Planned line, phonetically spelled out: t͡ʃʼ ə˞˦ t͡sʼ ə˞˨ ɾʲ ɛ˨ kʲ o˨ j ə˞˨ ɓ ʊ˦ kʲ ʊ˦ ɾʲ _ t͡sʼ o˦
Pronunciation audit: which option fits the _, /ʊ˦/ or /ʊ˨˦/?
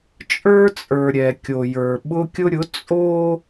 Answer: ʊ˨˦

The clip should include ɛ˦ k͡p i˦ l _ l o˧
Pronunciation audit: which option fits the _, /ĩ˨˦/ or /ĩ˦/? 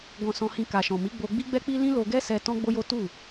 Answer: ĩ˦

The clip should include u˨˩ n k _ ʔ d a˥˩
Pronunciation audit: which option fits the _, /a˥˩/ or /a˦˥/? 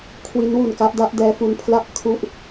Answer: a˦˥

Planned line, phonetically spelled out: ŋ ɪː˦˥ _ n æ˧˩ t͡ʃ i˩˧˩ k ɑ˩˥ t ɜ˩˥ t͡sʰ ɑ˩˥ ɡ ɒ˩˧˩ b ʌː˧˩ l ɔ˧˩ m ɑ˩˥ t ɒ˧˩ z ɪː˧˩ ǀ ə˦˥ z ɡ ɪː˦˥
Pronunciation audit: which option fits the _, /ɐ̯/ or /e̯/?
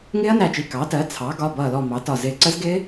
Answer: ɐ̯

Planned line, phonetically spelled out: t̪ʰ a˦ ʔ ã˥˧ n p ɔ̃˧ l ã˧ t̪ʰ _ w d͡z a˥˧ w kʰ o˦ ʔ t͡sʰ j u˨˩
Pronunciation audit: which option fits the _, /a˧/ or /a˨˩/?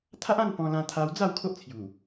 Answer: a˧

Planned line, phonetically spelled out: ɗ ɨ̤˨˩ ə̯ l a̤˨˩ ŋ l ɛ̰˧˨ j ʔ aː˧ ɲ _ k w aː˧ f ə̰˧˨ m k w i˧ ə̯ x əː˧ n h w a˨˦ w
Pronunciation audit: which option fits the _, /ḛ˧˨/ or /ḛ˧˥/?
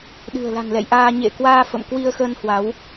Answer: ḛ˧˨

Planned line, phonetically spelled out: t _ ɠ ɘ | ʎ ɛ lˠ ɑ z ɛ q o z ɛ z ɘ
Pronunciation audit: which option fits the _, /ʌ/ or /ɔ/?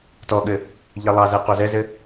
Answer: ɔ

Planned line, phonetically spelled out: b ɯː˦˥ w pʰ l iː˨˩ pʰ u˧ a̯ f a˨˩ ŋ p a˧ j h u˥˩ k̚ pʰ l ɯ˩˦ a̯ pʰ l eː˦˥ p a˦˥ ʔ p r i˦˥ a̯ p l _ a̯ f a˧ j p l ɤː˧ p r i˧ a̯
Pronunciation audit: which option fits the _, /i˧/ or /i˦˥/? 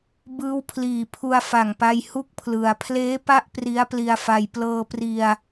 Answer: i˧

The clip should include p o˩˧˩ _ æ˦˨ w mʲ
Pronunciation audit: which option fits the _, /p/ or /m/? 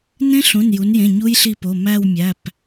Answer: m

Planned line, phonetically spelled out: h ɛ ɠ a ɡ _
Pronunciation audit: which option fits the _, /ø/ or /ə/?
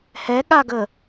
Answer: ə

